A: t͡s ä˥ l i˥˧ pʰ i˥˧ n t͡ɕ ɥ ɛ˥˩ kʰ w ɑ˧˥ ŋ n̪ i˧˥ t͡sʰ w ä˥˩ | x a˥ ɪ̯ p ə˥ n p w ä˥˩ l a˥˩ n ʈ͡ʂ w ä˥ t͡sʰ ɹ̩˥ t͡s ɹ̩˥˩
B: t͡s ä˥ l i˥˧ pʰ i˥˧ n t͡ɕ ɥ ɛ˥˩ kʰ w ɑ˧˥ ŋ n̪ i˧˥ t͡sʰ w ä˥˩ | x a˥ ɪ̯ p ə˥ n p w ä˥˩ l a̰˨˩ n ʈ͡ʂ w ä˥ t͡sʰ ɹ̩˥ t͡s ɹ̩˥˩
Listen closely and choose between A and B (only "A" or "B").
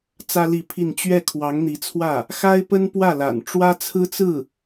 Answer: B